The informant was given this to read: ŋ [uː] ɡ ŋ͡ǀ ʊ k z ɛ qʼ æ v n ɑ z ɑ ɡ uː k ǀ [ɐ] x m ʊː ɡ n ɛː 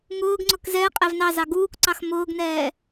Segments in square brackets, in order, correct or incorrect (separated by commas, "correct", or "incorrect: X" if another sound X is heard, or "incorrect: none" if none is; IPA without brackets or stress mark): incorrect: ʊː, incorrect: ɑ